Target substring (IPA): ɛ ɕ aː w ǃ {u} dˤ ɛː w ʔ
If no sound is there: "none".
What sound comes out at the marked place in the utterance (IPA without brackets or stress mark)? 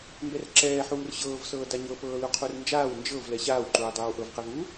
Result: uː